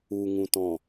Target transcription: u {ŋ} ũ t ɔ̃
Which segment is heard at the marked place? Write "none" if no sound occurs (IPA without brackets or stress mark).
ŋ